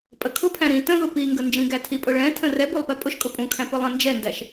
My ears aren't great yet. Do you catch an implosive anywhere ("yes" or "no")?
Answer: no